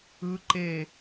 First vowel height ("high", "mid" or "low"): high